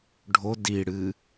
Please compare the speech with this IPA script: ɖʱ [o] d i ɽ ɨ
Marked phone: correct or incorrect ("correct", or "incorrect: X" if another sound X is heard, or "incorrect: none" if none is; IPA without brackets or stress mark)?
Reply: correct